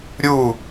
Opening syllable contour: falling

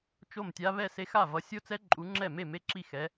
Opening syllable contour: falling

